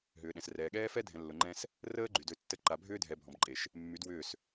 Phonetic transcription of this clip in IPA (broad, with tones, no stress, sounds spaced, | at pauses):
ɦ ʏː˨ ɗ ɛ̃˨ s r ɛː˨ ɠ ɛː˦ f ɛ˦ dʱ ɛ̃˨ lː ʊ˨ ŋ͡ǃ ɛ̃˦ s | r əː˦ ɡ͡ǃ y˨ d ø˦ tː ə˦ ǃ a˨ bʱ ʏː˦ dʱ ɛ˨ bʱ ɔ̃˨ b ǃʼ e˨ ʃ | mː y˨˦ d w ʏː˦˨ s